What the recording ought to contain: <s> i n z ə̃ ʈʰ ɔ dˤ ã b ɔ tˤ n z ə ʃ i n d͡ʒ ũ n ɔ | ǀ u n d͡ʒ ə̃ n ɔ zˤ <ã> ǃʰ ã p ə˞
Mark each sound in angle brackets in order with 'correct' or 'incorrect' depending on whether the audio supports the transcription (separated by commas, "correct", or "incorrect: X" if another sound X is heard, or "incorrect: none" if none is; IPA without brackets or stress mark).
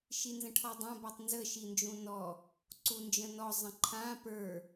incorrect: ʃ, incorrect: ə̃